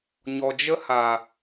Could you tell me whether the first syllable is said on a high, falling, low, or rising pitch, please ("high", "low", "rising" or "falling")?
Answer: low